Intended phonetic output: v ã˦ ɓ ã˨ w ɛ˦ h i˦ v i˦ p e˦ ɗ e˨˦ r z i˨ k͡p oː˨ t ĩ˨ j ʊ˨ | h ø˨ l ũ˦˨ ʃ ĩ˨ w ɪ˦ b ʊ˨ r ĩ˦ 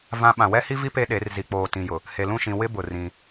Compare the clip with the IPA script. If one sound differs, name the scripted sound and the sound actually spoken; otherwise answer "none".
ø˨ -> e˨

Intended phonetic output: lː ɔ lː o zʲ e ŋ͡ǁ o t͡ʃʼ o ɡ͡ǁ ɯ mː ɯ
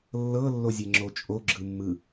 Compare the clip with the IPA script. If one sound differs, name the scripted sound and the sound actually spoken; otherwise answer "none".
ɔ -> ɤ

